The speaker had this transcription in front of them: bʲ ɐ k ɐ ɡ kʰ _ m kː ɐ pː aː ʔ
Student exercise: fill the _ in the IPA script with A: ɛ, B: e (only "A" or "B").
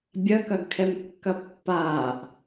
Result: A